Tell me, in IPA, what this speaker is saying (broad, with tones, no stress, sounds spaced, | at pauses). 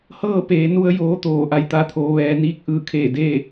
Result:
h ɤː˥˨ p eː˩˧ n u˧ ə̯ j oː˧˥ t̪ oː˧˩ ʔ a˧˩ j t̪ a˧ t̪ʰ oː˩˧ ʋ ɛː˩˧ n iː˧ k̚ ʔ ɯː˧˩ kʰ eː˧˩ d e˥˨